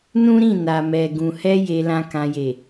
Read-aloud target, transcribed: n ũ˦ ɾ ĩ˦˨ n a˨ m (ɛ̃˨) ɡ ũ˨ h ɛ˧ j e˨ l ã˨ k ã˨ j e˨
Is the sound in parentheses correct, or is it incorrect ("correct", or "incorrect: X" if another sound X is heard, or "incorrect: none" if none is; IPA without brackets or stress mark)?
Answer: incorrect: ɛ˨